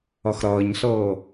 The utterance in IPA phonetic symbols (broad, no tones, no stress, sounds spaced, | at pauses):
ʌ x ɾ ʌː ɲ ɬ ɤː